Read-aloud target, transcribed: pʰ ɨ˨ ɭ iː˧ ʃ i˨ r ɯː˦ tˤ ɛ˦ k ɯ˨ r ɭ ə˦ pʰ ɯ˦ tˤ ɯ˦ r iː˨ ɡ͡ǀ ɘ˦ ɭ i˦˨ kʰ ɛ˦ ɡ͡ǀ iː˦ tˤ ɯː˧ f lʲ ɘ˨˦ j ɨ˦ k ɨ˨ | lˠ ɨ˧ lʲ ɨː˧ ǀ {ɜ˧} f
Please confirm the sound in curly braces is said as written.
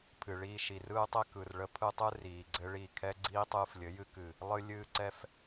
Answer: no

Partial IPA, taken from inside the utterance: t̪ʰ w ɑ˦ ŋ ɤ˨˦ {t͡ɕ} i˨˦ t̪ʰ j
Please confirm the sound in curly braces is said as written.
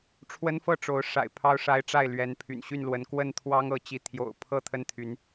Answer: yes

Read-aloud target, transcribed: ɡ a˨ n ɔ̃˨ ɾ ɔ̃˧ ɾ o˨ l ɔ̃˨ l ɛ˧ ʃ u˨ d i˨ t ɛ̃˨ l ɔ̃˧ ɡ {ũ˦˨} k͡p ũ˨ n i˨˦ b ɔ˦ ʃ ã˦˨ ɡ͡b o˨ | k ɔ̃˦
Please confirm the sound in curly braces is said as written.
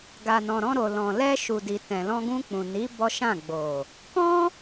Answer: no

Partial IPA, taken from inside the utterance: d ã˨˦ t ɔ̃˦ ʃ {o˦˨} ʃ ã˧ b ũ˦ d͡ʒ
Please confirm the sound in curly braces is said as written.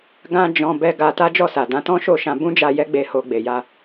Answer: yes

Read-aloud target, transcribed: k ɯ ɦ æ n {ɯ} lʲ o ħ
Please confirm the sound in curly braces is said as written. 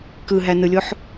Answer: yes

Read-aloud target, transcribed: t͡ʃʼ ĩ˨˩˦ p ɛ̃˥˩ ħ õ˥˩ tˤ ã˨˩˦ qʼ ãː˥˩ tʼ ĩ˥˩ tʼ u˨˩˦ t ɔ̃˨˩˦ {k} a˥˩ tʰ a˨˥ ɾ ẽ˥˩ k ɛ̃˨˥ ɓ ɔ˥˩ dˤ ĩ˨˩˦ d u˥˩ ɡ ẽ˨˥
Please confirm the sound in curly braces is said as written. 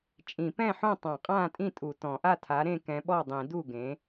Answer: no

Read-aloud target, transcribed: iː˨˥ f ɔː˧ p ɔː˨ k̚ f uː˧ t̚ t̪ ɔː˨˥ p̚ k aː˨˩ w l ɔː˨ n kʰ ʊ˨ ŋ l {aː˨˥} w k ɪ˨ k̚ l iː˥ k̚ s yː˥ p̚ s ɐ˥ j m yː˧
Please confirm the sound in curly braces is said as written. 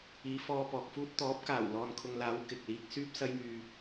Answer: yes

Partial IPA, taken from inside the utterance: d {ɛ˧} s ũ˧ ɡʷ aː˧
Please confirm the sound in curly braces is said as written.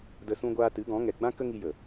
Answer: no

